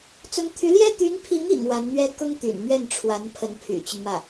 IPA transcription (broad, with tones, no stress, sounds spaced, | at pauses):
t͡s ʊ˧˥ ŋ t̪ʰ y˧˥ l j ɛ˥ t̪ y˧˥ n pʰ i˧˥ ŋ ḭ˨˩ ŋ w a˧˥ n n̪ ɥ ɛ˥ k ʊ˥ ŋ t̪ y̰˨˩ n m ɥ ɛ˥˩ n ʈ͡ʂʰ w a˧˥ n pʰ ə˧˥ n pʰ y̰˨˩ t͡ɕ y˦ n m ä˥˩